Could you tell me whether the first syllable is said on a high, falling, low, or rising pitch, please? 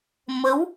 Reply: rising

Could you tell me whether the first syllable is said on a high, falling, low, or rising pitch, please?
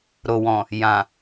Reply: low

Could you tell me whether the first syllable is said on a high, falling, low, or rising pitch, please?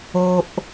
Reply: high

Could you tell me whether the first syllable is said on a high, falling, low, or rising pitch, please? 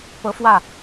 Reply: rising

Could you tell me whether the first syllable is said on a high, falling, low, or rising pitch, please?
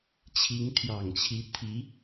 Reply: rising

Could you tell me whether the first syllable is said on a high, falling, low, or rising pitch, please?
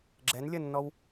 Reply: rising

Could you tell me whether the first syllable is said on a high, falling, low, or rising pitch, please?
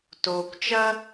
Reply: low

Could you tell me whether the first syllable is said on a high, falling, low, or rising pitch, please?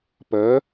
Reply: rising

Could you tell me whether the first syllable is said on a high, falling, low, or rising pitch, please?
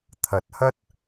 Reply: rising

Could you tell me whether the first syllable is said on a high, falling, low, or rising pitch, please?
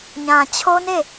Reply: low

